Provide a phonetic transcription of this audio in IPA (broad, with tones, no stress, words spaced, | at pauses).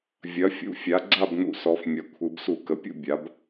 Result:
vʲɐ˩˥fʲṵ˩˥fʲa˩˥ ɡ͡ǀa˥˨bnṵ˧˩˧ sɔ˩˧fmʲɐ˩˧kʷʰɯ˩˧b su˧˩˧kə˩˧pʲṵ˥˨ bʲa˩˥b